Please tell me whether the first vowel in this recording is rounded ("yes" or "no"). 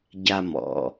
no